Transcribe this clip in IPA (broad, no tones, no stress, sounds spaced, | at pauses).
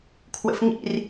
kʰ w ə̰ f ŋ ḭ r